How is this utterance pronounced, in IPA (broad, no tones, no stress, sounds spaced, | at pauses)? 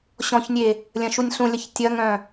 ɕ ɔ̃ ç nʲ e | lʲ ɐ̃ ʃ u nʲ ɬ ũ lʲ ɐ ç tʲ ɐ ŋ œ̃